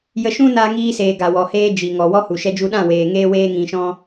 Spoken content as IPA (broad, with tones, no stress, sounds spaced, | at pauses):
j ə˧ ʃ ũ˦ n aː˧ ŋ iː˧ s eː˨ ɡ a˨ w ɔ˨ h eː˦ d͡ʒ i˨ ŋ ɔ˨ w ɔ˦ h u˨ ʃ ɛ˦ d͡ʒ u˦ ɗ ã˦˨ w eː˨ ŋ eː˦ w eː˦ ŋ ĩ˧ ʃ ɔ̃˦